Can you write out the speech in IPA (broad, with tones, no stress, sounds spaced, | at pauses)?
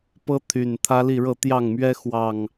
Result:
p ɤ˦ t̪ʰ y˨˩ n t̪ʰ ä˦ l i˥˨ ɻ ɤ˥˨ t̪ j ɑ˥˨ ŋ m ɥ ɛ˦ x w ɑ˨˩ ŋ